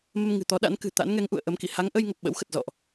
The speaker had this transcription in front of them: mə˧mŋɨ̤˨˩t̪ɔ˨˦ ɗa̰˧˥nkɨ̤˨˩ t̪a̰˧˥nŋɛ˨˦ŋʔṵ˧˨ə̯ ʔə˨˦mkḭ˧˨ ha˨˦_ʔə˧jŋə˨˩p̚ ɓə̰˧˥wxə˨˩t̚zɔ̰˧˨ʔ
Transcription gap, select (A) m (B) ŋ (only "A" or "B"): B